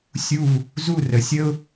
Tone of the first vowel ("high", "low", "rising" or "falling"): falling